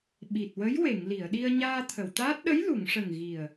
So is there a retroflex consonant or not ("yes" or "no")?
yes